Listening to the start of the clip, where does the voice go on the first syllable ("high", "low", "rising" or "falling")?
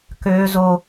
high